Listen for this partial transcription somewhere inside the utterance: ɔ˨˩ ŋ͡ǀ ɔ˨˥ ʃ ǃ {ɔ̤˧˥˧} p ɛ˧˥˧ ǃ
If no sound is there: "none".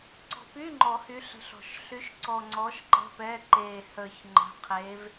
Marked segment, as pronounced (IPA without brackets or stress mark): ə̤˧˥˧